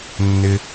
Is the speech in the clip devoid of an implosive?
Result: yes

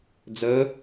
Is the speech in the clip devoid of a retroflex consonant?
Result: yes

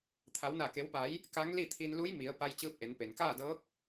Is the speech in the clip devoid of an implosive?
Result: yes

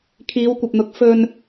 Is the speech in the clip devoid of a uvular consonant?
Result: yes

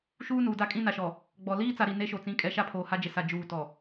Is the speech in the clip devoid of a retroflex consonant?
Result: yes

